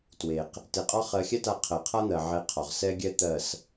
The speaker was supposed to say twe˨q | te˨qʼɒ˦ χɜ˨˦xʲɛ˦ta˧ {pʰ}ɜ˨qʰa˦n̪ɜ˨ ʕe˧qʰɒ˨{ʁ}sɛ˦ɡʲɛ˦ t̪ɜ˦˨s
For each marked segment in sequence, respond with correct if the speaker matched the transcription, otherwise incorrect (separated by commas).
incorrect, correct